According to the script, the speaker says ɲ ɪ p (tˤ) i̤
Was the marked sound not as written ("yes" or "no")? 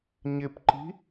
yes